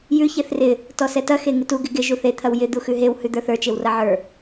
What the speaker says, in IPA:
jʉ çeθrɪ | tɔsɛtɐ xeŋɪtu ɡɪɡɪ ʒuθe t̪ʰɐwjɪ d̪uxʉɦew hʉd̪ə˞θə˞ t͡ʃewrɐʕə˞

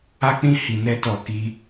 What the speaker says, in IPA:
a˦k͡pĩ˦ hi˧nɛ˦tɔ˦˨ ki˧

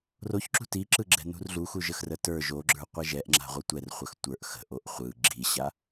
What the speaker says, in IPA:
roçǁṳ tiǁɯɡ͡ǁɛ̤ nṳrɮuxuʒəx rətə˞ ʒoɡ͡ǁə˞ qʷɛʒɛʔŋ͡ǁa̤ ʁʷɯtʷɛr χʷəxtʷə˞ʔ xə̤ʔoʔ χʷɯ ɡ͡ǁiɕa

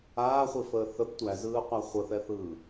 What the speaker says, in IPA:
aːχʷifəː θəb tʷæzɯːqʷa χʷəθɛθɯː

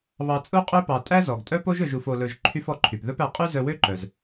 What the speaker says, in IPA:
βɑ˧ t͡sʼu˥qʼø˥ pɑ˧ tʼæ˥zɔ˩ɡtʼœ˥po˥ʒ ɵ˧ʒ u˧fo˧lɵ˧ʒ ǃʰy˥fɔ˧ǃʰy˩p ðɵ˥pæ˧ qʼy˥zœ˧wø˥ǃœ˩z

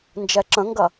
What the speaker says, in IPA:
nd͡ʒɛǁə̃ŋɡɐ

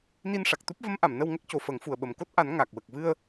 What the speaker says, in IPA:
ni˧nʂa˨˩k̚t̪u˦˥p̚ və˧˥mʔa˨˩˨m nə˧wŋə˦˥k̚co˨˩ fəː˨˩˦ŋfu˨˩ə̯ɓə˨˩m ko˦˥t̚ʔa˨˩˦n ŋa˨˩k̚wə˨˩k̚ vɨ˧ə̯

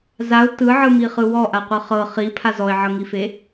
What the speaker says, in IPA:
zaʊ̯ tɯʕɯmiχɯ wɔʔaqʷɯ χɤ χipʰa zɔɪ̯ʕɤŋife

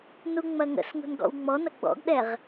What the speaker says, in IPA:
nuŋ͡mɐŋə̰sŋṳn ɡɔ̰wŋ͡mɔnɐ ɡ͡bɔ̰ɡɗɛʁ

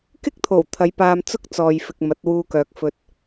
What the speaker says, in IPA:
kɪ˥k̚t̪ʰo˨˩w t̪ʰɐ˨˧jpaː˧mt͡sʊ˥k̚ t͡sɔː˨jfɪ˨k̚ mɐ˨˥t̚wuː˧kœː˨k̚ fɵ˧t̚

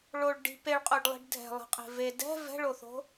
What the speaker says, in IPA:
ɭoɭ ɖi̤ peɭqʼoɖlˠi̤ɖ dʱɛ̤lˠɛ̤qʼe̤ ve dɛ̤ vɛ̤ɭoθo̤

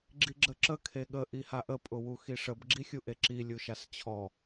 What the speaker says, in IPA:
ɡ͡ǁiɡ͡ǁəǁə kʰeɠə ʔihaʔə pʼʊwuxiʂəb ɡ͡ǁixʲuʔeǁi lʲuʃast͡ɕʰɔ

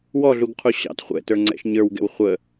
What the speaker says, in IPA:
wɔɮuɡqʰu ɕɑ̰t χʷɛ̰tə˞ŋ͡ǀɛ̰ʃ ɲə˞wɡɛ̰w χʷə

